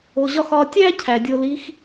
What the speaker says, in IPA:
o˧ ʑ ɒ˥ x ɒ˧ tʲ æ˥ cʰ æ˩ dʲ o˧ l i˧˥ x

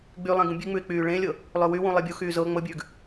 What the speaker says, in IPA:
ɡ͡b y lˠ ẽ ɡ ũ bʲ ʉ ŋ͡m ʉ ɪ̯ k͡p yː ɭ ẽ lʲ ɤ | lˠ ø w y w ũ lˠ e bʲ u x yː z ɤ ŋ͡m ɤ bʲ ʉː ɡ

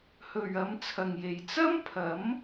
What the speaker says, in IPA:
h ɵ˨ ɥ ɐ˨˧ m t͡sʰ ɐ˨ ŋ j e˨ j t͡s ɐ˥ m pʰ ɐ˨˥ m

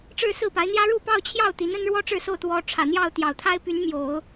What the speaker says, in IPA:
ʈ͡ʂ ɻ̩˥˧ s ɹ̩˥˩ p a˧˥ ɪ̯ n̪ j ä˥ ɻ u˥˧ p ɑ˥˧ ʊ̯ t͡ɕʰ j ɑ˥˩ ʊ̯ t̪ i˧˥ n ə˥ n ɻ w ɔ˥ ʈ͡ʂ ɻ̩˥˧ s o˥˩ ʊ̯ t̪ w ɔ˧˥ ʈ͡ʂʰ ä˨˩ n̪ j ɑ˥˩ ʊ̯ t̪ j ɑ˨˩ ʊ̯ t̪ʰ a˥ ɪ̯ p y˧˥ n m j o˨˩˦ ʊ̯

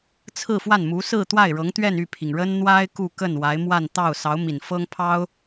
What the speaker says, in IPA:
t͡sʰ ɹ̩˥˧ f w a˥˩ n m u˧˥ s ɹ̩˥˧ t̪ w a˥˩ ɪ̯ ɻ ɤ˧˥ ŋ t̪ ɥ ɛ˥˧ n y˥˩ pʰ i˩ ŋ ɻ ə˥ n n̪ w a˥ ɪ̯ k u˥˧ k ə˥˩ n w a˧˥ ɪ̯ m w a˥˧ n t̪ ɑ˥˩ ʊ̯ s ɑ˧˥ ʊ̯ m i˨˩ n f ɤ˥ ŋ pʰ ɑ˥ ʊ̯

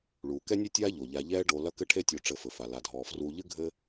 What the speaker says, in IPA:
ɭ uː˩ k ɛ˥ nʲ e˥ tʲ aː˥ ʎ o˩ ʎ a˨ ʎ ɛː˦ ɖ o˨ l ɐ˦ k ɘ˦ ʈʰ e˦ tʲ o˨ ʈ͡ʂ ɘ˨ f ɘ˩ f a˩ l a˩ dʱ ɔː˩ f r uː˨ ʎ ɨ˥ ɡʱ ɘ˦

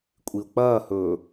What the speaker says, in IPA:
kʷʼ i ʊ̯ k͡p ɐː h ɵː

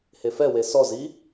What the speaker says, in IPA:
h e f ɛ w e s ɔ z i

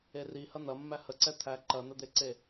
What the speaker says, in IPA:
e r i h ɐ n̪ ɐ mː æ h ə ǀ ɛ t̪ʰ æ ǃ ɐ n̪ ə d̪ e ǀ e

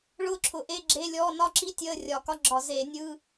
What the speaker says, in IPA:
ɭ ʊː˦˥ ǁʰ ʊ˧˩˧ ʔ e˧˥˧ ɡ͡ǁ e˧˥˧ lʲ ɔː˧˥˧ n ɒ˦˥ ǁ i˦˥ tʲ əː˧˥˧ rʲ ɒ˧˩˧ k ɒ˧˥˧ ɡ͡ǁ ɒ˧˩˧ z eː˧˩˧ nʲ ɯː˧˥˧

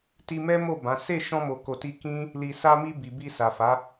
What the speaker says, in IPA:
t i˧ m ɛ˦ m o˦˨ b ã˨˦ s e˦˨ ʃ ɔ̃˧ m o˨ k o˨ t i˧ k ĩ˦ | l i˨ s a˧ m i˧ b i˨ b i˧ s a˨ f a˨˦

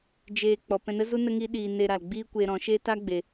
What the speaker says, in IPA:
d͡ʒ eː˧ k͡p ɔ˨ p ɛ̃˧ n ə˦ z u˦ n ə˦ ŋ i˦ ɗ iː˧ n e˧ ɾ a˨ l ɡ͡b iː˦ kʷ eː˧ ɾ ɔ̃˨˦ ʃ e˦ t a˦ ɡ͡b e˨

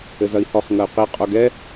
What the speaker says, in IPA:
ɘ z ɐ i̯ h ɔ χ ŋ ɐ y̯ q i qʼ o ɡ ɛ

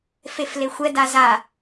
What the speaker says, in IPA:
f e f l e xʷ ɛ d a z a

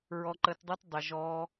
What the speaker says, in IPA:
ɹ ɔ˧ ǃ ə˧ t dˤ u˦ t dˤ ɪ˨ ʒ ɔ˧

